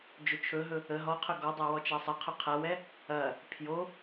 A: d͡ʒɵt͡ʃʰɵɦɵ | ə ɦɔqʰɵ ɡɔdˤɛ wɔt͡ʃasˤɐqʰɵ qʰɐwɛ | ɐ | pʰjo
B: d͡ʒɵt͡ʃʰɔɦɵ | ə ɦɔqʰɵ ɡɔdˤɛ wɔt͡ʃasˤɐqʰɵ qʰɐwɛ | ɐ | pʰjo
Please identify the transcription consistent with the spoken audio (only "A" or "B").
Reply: A